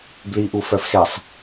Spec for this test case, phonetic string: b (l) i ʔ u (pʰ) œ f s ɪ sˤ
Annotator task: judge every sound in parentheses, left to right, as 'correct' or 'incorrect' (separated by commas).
correct, incorrect